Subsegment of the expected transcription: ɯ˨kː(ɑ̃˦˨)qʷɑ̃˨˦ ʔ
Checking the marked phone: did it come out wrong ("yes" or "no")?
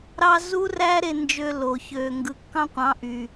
yes